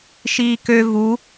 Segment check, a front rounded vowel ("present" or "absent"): present